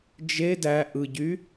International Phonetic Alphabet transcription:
d͡ʒ e d æ ʔ ɯ ɟ y

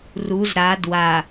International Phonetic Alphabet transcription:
r u z ɾ a d w a

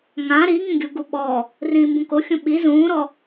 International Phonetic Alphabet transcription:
ŋ ã ɾ i ŋ ĩ ɡʲ u ɡ u ɓ ɔ | r ĩː m b ũ k o xʲ ũ ɓ i z ũː ɾ ɔ

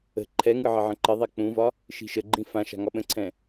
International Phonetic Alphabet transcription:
ə̤ ǃʰ ɛ ŋ ɯ ʕ ɪ ʕ ə̃ ǃ ɪ ðˤ ɛ k͡p ũ v ɒ | ʃ i̤ ʃ ə ɡ͡ǃ ĩ f ã ʃ a̤ ŋ ɒ ɓ ə̃ ǀʰ ɛ̃

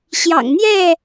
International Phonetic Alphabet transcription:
ɕ j ɑ̰˨˩ ŋ n̪ j ɛ˥˨

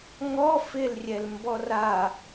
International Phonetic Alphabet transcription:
ŋ ɔ f ɪ l rʲ ɛ l m b ɔ r a

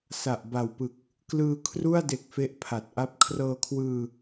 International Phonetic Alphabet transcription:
s a˨˩ ʔ b a˨˩ w p ɯ˨˩ k̚ | k l ɯː˧ kʰ r u˥˩ a̯ d e˨˩ k̚ f e˦˥ ʔ pʰ a˨˩ t̚ ʔ a˥˩ p̚ kʰ r ɤː˧ kʰ w ɯː˧

